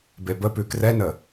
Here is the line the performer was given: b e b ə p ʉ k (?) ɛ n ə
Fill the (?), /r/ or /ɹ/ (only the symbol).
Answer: r